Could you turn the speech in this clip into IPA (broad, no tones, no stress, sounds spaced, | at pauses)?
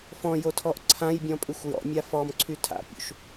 f ɔ̃ j o tʰ ɔ ʔ ǀʰ ã j bʲ ɔ̃ pʼ ʉ xʷ j ɔ̰ mʲ a f ɔ m ǀʰ y tʰ a̰ pʲ ṵ ʃ